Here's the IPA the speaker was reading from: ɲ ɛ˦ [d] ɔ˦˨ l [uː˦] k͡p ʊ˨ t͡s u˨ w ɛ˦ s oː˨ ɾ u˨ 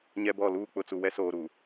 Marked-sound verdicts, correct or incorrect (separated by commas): incorrect, correct